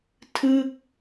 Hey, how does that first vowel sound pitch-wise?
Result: falling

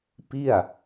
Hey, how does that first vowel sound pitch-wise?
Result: falling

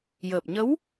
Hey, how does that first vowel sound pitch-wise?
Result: low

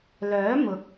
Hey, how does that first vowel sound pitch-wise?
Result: rising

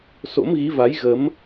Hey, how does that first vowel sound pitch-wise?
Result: rising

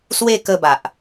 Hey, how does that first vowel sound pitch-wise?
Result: high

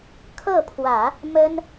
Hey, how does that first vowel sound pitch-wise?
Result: falling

